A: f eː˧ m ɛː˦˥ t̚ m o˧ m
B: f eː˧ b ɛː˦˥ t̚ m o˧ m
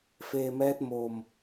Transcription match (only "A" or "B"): A